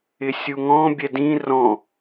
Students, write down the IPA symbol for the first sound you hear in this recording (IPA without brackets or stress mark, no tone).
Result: ɪ